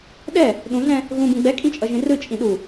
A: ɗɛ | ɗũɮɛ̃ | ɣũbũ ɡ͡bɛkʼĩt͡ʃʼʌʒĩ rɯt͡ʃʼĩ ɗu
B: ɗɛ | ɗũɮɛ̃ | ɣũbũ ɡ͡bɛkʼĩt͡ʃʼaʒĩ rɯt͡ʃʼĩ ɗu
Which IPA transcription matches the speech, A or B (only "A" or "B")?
A